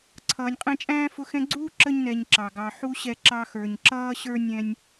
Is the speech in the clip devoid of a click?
no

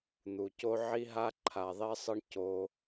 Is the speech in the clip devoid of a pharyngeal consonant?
no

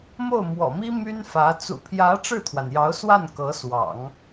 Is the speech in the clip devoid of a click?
yes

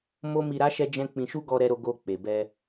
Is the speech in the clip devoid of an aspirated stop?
yes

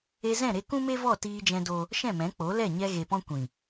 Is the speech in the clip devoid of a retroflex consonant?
yes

